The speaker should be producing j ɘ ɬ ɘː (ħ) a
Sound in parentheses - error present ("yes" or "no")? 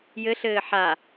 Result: no